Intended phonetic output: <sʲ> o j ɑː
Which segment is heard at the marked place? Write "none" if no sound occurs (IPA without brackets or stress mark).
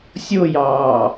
sʲ